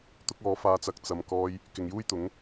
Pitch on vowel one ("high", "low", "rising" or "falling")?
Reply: high